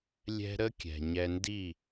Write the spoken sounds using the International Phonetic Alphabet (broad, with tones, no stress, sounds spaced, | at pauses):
lʲ ɛ̤˧ ɾ ə˥ kʲ ɛ̤˩ ɲ ɛ˧ n d i˥˩